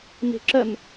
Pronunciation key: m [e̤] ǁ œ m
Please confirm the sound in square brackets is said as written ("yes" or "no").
yes